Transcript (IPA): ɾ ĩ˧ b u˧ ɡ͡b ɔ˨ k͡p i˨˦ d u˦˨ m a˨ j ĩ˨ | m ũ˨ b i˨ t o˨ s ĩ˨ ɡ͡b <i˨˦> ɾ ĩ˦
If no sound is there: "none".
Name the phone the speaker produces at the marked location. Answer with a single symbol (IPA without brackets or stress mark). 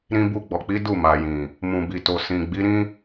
i˨˦